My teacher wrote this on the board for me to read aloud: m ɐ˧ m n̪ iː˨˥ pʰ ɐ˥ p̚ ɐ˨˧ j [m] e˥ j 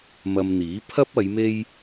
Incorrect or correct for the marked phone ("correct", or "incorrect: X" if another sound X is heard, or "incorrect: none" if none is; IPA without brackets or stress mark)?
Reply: correct